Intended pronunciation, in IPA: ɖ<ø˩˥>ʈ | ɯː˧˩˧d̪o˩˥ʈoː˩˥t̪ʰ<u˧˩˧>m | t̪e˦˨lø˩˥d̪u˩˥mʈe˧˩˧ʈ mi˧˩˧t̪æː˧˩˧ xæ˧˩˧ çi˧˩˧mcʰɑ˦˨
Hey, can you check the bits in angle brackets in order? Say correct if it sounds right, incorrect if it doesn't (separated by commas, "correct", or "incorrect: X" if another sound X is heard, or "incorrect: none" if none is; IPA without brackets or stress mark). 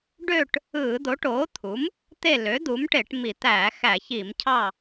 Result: incorrect: ø˦˨, incorrect: u˩˥